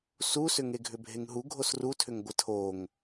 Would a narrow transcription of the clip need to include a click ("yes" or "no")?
no